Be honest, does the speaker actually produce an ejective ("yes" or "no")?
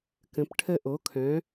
no